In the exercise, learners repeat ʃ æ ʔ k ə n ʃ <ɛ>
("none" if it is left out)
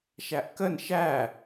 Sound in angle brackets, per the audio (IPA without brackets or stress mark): æ